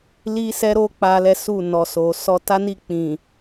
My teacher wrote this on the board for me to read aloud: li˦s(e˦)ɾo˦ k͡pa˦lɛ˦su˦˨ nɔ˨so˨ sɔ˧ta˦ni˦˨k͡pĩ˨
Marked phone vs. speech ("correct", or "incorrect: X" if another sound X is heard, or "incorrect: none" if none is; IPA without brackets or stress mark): incorrect: ɛ˦